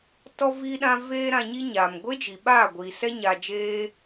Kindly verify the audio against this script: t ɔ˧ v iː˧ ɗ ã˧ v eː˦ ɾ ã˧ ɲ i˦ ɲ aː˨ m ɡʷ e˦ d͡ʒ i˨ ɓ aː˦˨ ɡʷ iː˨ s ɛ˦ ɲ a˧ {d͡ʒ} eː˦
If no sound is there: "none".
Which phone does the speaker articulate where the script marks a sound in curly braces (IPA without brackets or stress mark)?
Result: d͡ʒ